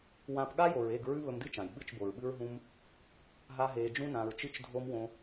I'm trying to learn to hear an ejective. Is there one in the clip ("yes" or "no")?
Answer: no